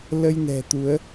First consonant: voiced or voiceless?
voiced